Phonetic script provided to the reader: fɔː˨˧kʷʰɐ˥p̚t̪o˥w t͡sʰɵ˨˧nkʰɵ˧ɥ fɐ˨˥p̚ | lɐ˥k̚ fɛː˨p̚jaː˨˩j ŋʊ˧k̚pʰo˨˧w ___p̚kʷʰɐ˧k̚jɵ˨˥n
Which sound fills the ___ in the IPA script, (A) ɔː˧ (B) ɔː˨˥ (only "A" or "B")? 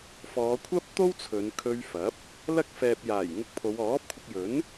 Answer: B